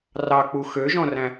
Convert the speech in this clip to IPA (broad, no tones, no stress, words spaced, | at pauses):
rɑk͡pu xøʒɔ̃ræ̃